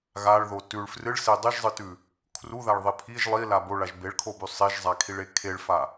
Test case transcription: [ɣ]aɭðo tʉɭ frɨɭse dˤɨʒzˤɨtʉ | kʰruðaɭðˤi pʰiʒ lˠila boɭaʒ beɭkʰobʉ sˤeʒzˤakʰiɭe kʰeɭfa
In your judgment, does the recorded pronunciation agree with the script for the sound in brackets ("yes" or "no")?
yes